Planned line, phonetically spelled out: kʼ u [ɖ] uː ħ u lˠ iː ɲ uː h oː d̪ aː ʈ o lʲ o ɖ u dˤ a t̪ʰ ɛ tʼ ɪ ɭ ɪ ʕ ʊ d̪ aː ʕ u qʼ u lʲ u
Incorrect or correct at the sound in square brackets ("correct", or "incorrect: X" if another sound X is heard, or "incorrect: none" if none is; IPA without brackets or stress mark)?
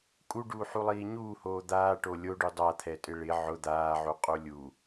correct